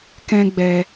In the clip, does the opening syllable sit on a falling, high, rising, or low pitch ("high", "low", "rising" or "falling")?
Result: high